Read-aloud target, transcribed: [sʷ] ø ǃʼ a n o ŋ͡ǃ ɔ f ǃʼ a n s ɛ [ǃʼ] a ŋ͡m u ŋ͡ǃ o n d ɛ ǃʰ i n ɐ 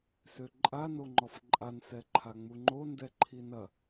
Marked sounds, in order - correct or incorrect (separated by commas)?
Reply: incorrect, incorrect